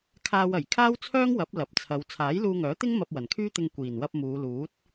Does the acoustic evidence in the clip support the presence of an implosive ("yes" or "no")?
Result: no